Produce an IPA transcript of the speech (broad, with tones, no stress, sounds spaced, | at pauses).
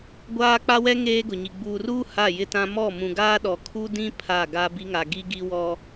ɡʷ aː˦ k͡p a˦ w ɛ˦ ŋ eː˦ ɡ ʊ˨ ɲ i˨ ɡ͡b uː˨ r uː˦ h a˦˨ j ɪ˦ t ã˦ m ɔ˦˨ m ũ˨ ɡ aː˦ ɗ ɔ˨ kʰ u˦ d ĩ˦ pʰ a˦˨ ɡ a˦ b i˦ ŋ a˨ ɡ i˦ ɡ i˦ w ɔ˦